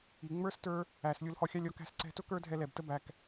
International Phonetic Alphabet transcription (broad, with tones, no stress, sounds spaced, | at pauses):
i˨ ŋ͡m ə˞˦ s t ə˞˦ | æ˨ s lʲ u˧ l h ɔ˧ xʲ ɑ˦ lʲ ɔ˧ k æ̤˧ s ǀ ɛ̤˧ t ʊ˦ k ə˞˦ dʱ ɛ˧ l ɛ˨ b t ə˦ b æ˧ k